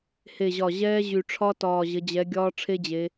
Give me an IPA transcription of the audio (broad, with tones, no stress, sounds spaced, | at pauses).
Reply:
h e˨˩ ʑ ɒ˨˩ ʑ ɛː˦˥ ʑ y˨˩ ʈ͡ʂʰ ɒ˦˥ t ɒː˨˩ ʑ ə˩˧ d͡ʑ ɛ˩˧ ɡʲ ɒː˦˥ ʈ͡ʂʰ e˦˥ d͡ʑ e˩˧